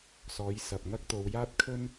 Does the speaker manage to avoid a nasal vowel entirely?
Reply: yes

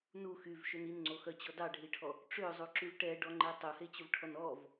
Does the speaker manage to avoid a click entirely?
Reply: no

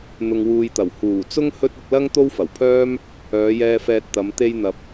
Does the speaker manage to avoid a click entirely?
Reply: yes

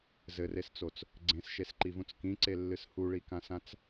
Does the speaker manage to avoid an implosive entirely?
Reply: yes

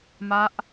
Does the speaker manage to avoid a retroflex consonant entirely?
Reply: yes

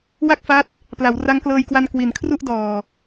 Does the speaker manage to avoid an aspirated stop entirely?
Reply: no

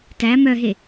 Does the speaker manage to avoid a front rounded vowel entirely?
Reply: no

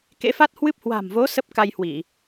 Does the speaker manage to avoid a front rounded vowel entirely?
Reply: yes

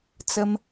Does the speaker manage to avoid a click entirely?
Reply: yes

